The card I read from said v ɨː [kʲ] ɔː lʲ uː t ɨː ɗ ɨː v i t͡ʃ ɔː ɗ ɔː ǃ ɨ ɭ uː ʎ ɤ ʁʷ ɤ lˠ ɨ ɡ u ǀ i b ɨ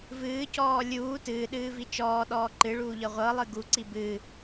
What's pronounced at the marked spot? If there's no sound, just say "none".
c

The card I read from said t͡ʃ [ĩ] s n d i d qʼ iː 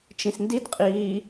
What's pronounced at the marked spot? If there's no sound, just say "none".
ĩ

